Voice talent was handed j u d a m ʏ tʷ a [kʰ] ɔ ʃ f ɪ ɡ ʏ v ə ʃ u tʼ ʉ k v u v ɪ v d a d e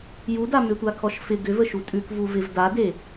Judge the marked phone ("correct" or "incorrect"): correct